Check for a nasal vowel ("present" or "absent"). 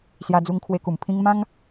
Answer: present